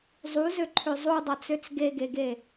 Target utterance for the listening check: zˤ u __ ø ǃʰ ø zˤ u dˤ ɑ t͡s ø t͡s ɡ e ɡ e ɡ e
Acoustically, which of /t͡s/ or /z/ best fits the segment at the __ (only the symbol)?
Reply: z